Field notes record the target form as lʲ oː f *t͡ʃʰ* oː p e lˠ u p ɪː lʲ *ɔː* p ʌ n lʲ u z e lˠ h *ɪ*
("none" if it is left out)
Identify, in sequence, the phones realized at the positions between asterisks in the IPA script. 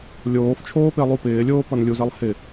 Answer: t͡ʃʰ, oː, ɪ

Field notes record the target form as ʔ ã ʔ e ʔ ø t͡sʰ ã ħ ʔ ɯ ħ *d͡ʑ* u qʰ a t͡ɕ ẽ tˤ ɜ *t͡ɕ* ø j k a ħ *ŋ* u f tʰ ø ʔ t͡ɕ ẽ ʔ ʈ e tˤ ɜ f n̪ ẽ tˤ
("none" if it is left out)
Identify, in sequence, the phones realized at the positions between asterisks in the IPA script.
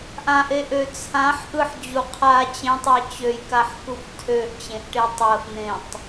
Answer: d͡ʑ, t͡ɕ, k

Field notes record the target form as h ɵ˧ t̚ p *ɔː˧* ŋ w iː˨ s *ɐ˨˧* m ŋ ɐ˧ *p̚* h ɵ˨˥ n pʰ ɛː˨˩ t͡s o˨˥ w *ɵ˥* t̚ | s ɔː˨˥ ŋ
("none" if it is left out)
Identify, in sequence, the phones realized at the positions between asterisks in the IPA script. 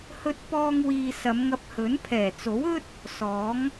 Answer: ɔː˧, ɐ˨˧, p̚, ɵ˥

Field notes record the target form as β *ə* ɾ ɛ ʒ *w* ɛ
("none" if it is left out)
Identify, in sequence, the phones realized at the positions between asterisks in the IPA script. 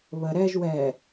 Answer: ə, w

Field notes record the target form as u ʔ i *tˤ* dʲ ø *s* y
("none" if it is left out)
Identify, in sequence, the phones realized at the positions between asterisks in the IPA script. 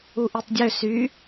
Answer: tˤ, s

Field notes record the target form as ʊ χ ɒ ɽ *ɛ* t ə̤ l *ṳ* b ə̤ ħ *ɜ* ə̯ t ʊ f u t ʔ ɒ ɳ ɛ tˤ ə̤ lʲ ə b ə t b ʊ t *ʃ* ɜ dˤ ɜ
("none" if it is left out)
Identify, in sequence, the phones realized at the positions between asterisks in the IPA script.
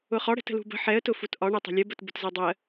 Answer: ɛ̤, ṳ, ɛ, z

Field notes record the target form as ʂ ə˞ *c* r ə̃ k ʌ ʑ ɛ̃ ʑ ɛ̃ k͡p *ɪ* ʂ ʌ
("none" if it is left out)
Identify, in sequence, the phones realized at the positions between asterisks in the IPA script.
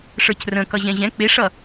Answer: c, ɪ

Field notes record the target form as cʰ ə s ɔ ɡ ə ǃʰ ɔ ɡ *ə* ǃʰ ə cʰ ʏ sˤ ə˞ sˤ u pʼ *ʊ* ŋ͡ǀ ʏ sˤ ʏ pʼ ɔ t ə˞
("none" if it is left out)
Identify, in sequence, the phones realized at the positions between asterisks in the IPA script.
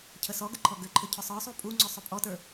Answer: ʏ, u

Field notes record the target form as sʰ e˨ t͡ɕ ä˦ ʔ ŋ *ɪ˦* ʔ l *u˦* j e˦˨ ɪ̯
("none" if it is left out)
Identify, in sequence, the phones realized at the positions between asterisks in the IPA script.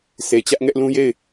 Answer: ɛ˦, ũ˦

